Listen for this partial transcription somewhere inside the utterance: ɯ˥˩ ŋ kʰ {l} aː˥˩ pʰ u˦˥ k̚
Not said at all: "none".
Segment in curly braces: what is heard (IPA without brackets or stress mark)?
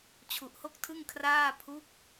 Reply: r